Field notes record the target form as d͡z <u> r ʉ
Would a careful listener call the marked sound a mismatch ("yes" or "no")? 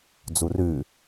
no